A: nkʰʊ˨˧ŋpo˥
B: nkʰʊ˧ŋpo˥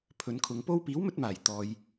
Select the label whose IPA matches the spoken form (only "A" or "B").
A